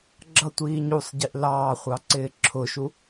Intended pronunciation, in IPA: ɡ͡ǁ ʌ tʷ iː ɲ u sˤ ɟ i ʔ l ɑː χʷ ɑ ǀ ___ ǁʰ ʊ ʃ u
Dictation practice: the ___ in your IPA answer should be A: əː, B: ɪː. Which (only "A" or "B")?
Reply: B